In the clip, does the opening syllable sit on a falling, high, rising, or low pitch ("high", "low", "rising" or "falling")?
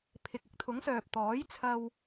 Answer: low